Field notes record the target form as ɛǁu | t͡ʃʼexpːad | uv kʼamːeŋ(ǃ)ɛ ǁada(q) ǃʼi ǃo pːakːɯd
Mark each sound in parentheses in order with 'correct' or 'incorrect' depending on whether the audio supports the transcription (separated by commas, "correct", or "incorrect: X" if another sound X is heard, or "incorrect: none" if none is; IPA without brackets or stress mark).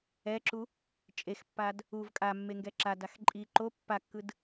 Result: incorrect: ɡ, incorrect: x